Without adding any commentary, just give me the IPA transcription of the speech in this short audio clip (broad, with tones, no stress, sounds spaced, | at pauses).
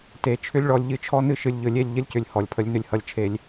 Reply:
t e˨˦ t͡ʃʰ ʏ˦ lʲ ɭ ɔ˧ lʲ ʎ ɨ˧ t͡ʃʰ ɔ˦ n ɨ˧ ʃ ɨ˨ lʲ ʎ ɵ˨ lʲ e˦˨ lʲ ʎ ə˦ lʲ c ʏ˨ lʲ h ɔ˨ lʲ pʰ ə˧ lʲ n ʏ˧ lʲ h ʌ˨ lʲ t͡ʃʰ e˨ lʲ